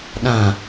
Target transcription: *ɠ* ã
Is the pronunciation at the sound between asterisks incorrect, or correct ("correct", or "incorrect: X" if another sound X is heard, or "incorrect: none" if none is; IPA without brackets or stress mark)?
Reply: incorrect: ɗ